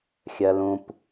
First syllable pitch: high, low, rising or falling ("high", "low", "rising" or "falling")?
high